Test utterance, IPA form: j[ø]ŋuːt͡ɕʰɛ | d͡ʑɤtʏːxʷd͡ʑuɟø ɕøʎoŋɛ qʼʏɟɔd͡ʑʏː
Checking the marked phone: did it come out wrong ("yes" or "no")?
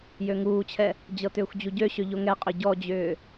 no